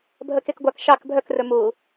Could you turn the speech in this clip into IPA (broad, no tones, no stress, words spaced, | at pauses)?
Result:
bʱəkekɡʷak ʃɑk bʱœkrɵ mu